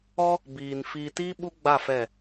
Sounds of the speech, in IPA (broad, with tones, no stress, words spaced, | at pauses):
ɔ˦ | biː˨n fiː˨tiː˦ ɓu˦ɡ͡ba˦˨ fɛ˦˨